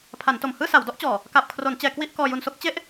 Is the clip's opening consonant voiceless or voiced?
voiceless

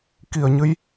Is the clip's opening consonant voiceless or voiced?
voiceless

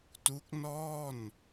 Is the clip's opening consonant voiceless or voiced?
voiceless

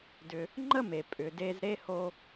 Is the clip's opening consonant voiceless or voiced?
voiced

